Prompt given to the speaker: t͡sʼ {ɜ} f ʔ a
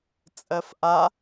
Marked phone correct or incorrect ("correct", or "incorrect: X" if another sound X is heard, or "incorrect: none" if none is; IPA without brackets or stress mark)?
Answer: correct